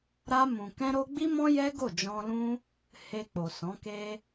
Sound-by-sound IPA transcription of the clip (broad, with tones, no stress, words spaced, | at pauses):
ɾa˧mũ˨ kɛ̃˧ɾo˧ɡ͡bi˦mɔ̃˦ jɛ˦ɡo˦˨d͡ʒɔ̃˧lũ˦ | he˧k͡po˨sɔ̃˨˦ ke˧